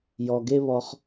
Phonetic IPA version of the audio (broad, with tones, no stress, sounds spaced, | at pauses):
j ɔ˩ ɡ e˥ β ɔ˧ χ